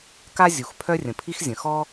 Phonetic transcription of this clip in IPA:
k a˥ zʲ u˩ x pʰ œ˥ rʲ ə̃˩ pʰ i˥ x zʲ ə̃˩ x ɔ˥

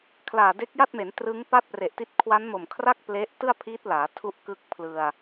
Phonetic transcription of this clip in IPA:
kʰ l aː˨˩ d e˦˥ k̚ j a˥˩ t̚ m e˩˦ n t r ɯ˦˥ ŋ p a˥˩ t̚ p r e˨˩ ʔ t i˦˥ t̚ kʰ w a˦˥ n m o˨˩ m kʰ r a˥˩ k̚ p l e˦˥ ʔ t ɯ˥˩ a̯ pʰ i˦˥ t̚ l aː˩˦ tʰ u˦˥ ʔ k ɯ˦˥ k̚ pʰ l ɯ˧ a̯

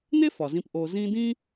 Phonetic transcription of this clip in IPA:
n̪ e˥ f ɒ˩ z ĩ˨ p ʔ o˨ z ĩ˦ d ĩ˥

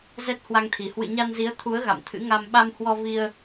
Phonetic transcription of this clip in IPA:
z ɛ˦˥ t̚ h w a˧ ŋ t̪ʰ i˨˩ h w ɨ̰˧˨ ɲ a˧ n z i˨˦ ə̯ t̪ʰ u˨˦ ə̯ ɣ a̰˧˨ m t̪ʰ ɨ̰˧˥ ŋ a˧ m ɓ a˧ m h w ɔ˧ v i˧ ə̯

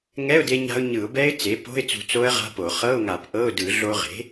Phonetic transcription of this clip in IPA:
ŋ ɛ˧˥˧ ʊ̯ d e˧ ɲ a̤˧ ʊ̯ ɲ ɯ˧˩˧ ʊ̯ b ɛ˦˥ ɪ̯ t͡s e˩˥ p o̤˧˥˧ ɪ̯ t͡s ṳ˧ t͡s o˦˥ ə̯ ʁ a̤˧˥˧ p o˧˩˧ χ ɤ˧˥˧ ʊ̯ ŋ a˧˩˧ p ʔ ɤ˧˥˧ ʊ̯ d ɯ˧˩˧ ɮ o˧ ʁ e̤˩˥

